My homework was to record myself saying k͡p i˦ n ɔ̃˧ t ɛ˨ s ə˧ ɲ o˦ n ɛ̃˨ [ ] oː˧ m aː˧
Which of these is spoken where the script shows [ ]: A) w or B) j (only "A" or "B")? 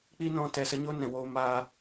A